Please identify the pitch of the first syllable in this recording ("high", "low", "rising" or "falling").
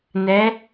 rising